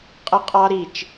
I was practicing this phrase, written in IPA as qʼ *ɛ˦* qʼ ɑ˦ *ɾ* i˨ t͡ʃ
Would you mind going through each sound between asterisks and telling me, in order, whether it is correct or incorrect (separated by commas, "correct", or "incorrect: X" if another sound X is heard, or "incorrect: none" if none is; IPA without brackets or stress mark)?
incorrect: ə˦, correct